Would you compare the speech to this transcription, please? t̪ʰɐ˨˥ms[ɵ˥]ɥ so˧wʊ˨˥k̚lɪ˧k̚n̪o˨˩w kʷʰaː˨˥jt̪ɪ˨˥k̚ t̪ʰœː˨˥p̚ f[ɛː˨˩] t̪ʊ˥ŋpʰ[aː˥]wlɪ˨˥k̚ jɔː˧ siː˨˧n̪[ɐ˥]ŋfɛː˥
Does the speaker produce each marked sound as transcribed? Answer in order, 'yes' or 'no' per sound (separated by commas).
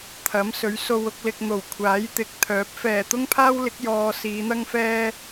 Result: no, yes, yes, yes